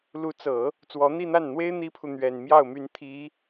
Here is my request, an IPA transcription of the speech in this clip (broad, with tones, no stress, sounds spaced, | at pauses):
l u˧˥ t͡s ɤ˨˩˦ | t͡s w ɔ˧˥ n̪ i˥˧ n̪ a˥˩ n n̪ w e˥ ɪ̯ n̪ i˥ pʰ u˨ n̪ ɥ ɛ˨˩ n m j ɑ˥˩ ʊ̯ m y˧˥ n t̪ʰ i˧˥